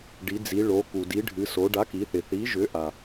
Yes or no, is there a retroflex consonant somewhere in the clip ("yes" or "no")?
yes